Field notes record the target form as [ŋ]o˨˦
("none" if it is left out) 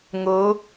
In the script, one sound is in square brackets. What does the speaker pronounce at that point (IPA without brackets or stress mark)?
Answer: ŋ